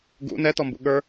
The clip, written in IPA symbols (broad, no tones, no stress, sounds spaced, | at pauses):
ɡ ṵ n ɛ t ɔ m b ṵ ɠ ə˞